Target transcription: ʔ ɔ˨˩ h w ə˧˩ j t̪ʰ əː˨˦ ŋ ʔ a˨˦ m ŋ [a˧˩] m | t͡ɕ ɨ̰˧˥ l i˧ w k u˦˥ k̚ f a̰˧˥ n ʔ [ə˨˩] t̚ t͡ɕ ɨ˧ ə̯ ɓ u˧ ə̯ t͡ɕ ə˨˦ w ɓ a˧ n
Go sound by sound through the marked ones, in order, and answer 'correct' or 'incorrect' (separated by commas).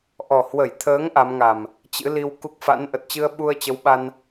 incorrect, correct